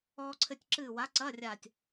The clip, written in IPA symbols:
ɔː˧ǀʰɘ˧tʲ ǁɨː˧˩wa˨˥ ǀɐː˧˥˧rʲaː˧˩tʲ

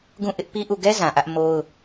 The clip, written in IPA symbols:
ɡũ˦˨ʔɪ˦ʔpi˦ʔu˦˨ ɡɛ˦ zã˨ʔä˦ʔ mo˦ʊ̯

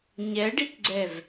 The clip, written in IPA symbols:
ɲɛɖikɡ͡ǀɛv

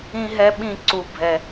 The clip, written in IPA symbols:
ĩ˦ɦɛ˦ɓĩ˦ ǀu˦bʱɛ˦

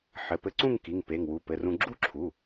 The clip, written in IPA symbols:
ħɘ˩˧˩pɘ˧ǀũ˥˧ŋki˩˧˩ŋ pe˩˧˩ŋwu˩˧˩pɘ˩˧˩rũ˧ ɡ͡ǁu˥˧ǁʰu˩˧˩

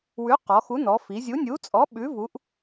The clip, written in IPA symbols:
wʉ˨˥qɔ˩˧xu˨˥nɔ˩˧ fi˩˧zʲu˨˥nʲu˨˥t͡sʼɔ˨˥ ɓʉ˨˥vu˨˥ʔ

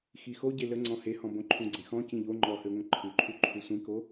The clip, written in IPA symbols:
xixo ɟelə ŋ͡ǀɔ̃hehɔ̃bõ ǃʰũɡ͡ǀẽxɔ̃ cĩʎo ŋ͡ǃɔhøŋʷə̃ ǃʰʉǃʰu ǃʰusʷĩko

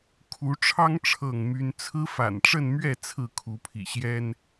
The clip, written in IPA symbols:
kʰu˨˦ʈ͡ʂʰɑ˦ŋ ʈ͡ʂʰɤ˥˨ŋmy˦n t͡sʰɹ̩˦fa̰˨˩nʈ͡ʂə˥˨nmɥɛ˥˨ t͡sʰɹ̩˥˨kʰu˨˦pʰḭ˨˩ɕjɛ˦n

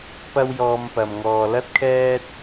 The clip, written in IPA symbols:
pɐ˥wjɔː˧mpɐ˨m ŋɔː˨lɐ˥t̚kʰɛː˥t̚

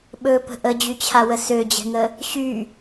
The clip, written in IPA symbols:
ɓɵpə̤ ʔəd͡ʑyt͡ɕʰawə sød͡ʑɛ̤ŋə | ɕy

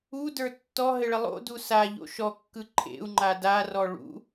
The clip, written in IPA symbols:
udə˞ tːɔɦɘɭɪ lˠo̰du saʎo̰ ʃɔkːɯ ǃʰḛu̯ŋ͡ǃa darɔ ɭṵ

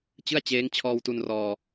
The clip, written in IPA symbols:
t͡ɕɯ˥˩a̯t͡ɕeː˦˥ŋ t͡ɕʰɔː˧wtu˧nrɔː˧

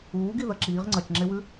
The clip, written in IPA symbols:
uːɡi ðɐǁiːʁ ŋ͡ǀɐt͡ʃŋ͡ǁewʉ

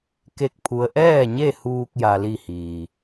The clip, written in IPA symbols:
ke˥˨k̚pʰu˧˥ə̯ ʔɛː˥˨ɲe˥˨huː˧k̚ ja˧li˥˨hiː˩

